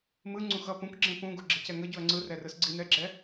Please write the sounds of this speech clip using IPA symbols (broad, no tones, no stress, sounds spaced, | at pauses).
m ɯ ŋ͡ǀ ũ x ʌ p ũ k ɡ͡ǁ ẽ p ũ ɡ ṳ ɡ͡ǁ i̤ c ɛ ŋ ʌ ɟ u ɐ̯ ŋ͡ǀ ɯ r ɛ r ɯ s ɡ͡ǀ i n ɛ ɡ͡ǁ ɛ